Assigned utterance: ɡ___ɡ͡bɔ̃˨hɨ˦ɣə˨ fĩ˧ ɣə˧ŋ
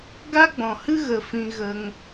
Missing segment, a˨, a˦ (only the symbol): a˦